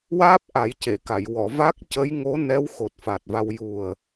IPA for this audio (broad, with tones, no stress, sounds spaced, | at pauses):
w aː˦˥ p̚ ʔ a˨˩˦ j c e˨˩˨ k a˨˩˨ j w ɔ˨˩˨ v a˦˥ k̚ c ə˧˥ j ŋ o˧˥ n ɛ˧˥ w x o˨˩ t̚ f a˨˩ t̚ v a˧ w j u˨˩ ə̯